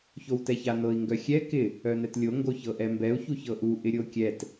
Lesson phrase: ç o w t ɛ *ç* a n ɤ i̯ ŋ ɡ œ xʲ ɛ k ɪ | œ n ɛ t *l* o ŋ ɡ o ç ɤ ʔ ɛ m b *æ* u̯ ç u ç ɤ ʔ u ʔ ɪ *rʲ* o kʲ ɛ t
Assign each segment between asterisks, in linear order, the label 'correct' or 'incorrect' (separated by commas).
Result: correct, incorrect, incorrect, incorrect